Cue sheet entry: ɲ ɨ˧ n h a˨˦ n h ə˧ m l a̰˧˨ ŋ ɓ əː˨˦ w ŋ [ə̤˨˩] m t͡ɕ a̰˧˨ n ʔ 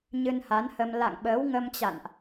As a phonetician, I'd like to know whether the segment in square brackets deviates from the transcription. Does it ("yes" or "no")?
yes